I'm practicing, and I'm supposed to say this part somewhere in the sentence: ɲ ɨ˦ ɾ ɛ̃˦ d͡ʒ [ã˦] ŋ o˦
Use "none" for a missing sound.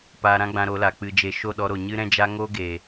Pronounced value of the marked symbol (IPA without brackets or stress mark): a˦